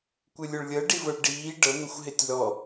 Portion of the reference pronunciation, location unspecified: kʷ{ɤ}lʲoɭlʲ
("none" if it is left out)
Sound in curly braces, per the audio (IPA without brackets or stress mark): ɯ